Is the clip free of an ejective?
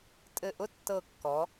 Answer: no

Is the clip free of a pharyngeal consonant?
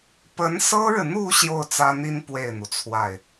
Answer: yes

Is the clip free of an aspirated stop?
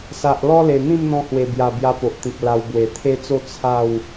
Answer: no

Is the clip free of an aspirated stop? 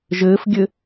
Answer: yes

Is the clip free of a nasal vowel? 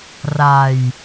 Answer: yes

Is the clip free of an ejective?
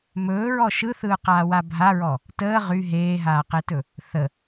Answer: yes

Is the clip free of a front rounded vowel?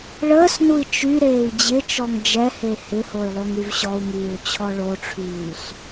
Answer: no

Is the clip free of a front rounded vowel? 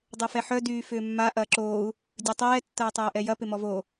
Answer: no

